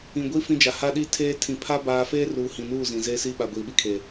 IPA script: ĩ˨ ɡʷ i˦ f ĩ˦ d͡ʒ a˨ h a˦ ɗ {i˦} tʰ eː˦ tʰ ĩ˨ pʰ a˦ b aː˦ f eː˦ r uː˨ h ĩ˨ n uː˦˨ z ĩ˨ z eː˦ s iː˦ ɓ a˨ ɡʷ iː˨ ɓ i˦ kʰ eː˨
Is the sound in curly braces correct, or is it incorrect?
correct